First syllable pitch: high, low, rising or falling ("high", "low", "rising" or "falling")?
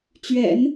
low